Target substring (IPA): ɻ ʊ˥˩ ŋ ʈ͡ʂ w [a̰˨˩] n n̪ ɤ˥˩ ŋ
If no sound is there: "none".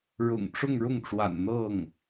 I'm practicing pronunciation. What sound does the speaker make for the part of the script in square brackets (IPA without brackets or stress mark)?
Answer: a̰˨˩